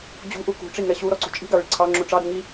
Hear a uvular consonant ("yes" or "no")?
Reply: no